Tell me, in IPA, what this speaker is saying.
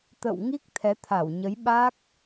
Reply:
t̪ə̰˧˨wŋi˦˥k̚ t̪ʰɛ˨˦t̪ʰa˧˩wɲə˨˦j ɓa˦˥k̚

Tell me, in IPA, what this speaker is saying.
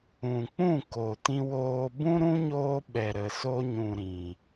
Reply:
ũ˨k͡pũ˦˨ko˨ tĩ˧woː˧ bũ˦ɾũ˦ɲoː˧ ɓɛ˨ɾə˨so˧ɲũ˨ ɾĩ˨

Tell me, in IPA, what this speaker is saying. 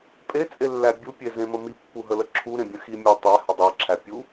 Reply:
pʼet͡sʼelːæ bʲupʲezẽmə mipːuɦələ ǁʰuɾẽbʲə̃ ximʲæ tˤæhə dˤæǁʰæpʲu

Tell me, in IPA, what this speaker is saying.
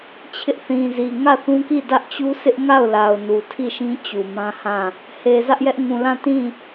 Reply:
t͡ɕʰɪ˦ʔθĩ˨zi˨ ŋä˦˨θũ˦ki˦˨ dä˦ʔt͡ɕu˦ sɪ˦ʔŋa˦˨ʊ̯la˨ʊ̯ nu˨ tʰi˦˨ʃĩ˦ t͡ɕu˨mã˦hã˦˨ | he˨zä˦ʔjɛ˦ʔ ŋũ˨ lã˦˨tĩ˦˨

